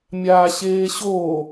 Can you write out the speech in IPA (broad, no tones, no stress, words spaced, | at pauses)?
mʲaːɕeːɕo